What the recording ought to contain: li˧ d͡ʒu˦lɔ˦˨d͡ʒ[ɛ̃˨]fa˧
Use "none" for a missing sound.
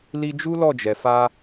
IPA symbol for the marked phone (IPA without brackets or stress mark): ɛ˨